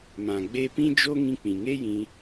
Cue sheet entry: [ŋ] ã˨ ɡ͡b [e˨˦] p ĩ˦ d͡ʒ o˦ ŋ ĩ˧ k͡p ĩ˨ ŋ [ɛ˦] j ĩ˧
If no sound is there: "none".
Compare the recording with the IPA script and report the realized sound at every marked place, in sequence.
m, e˧, e˦

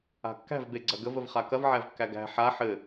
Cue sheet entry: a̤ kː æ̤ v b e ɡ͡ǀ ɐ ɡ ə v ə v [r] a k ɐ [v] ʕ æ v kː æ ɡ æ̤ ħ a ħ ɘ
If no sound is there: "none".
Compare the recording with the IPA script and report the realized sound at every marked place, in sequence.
χ, v

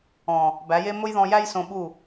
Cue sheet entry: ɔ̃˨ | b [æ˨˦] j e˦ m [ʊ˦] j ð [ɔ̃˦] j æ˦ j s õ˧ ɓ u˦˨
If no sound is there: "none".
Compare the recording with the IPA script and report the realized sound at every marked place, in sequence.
æ˨˦, ʊ˦, ɔ̃˧

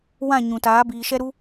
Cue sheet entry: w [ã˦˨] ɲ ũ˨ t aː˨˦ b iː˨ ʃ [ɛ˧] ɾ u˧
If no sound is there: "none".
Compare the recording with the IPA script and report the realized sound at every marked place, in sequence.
ã˦˨, ɛ˧

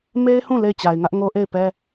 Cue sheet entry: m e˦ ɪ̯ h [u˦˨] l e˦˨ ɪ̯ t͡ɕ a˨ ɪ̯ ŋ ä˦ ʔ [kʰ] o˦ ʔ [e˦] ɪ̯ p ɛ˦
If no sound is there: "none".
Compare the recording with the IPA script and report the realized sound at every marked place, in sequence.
ũ˦˨, ŋ, e˦˨

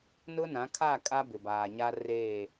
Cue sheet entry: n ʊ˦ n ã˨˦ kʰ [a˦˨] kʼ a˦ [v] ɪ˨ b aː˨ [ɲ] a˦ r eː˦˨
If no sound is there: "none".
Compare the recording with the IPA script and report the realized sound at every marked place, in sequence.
a˦˨, b, ɲ

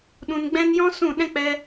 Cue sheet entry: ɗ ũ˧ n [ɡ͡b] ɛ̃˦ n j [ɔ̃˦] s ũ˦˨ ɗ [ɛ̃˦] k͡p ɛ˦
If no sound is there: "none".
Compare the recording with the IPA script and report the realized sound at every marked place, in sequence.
ɡ͡b, ɔ̃˦, ɛ̃˦

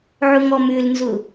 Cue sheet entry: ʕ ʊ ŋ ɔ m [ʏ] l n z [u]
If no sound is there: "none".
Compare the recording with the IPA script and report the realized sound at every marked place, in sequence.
ʏ, ʊ

